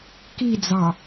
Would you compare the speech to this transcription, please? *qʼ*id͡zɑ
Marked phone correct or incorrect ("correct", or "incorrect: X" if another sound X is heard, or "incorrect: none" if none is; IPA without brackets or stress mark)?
incorrect: k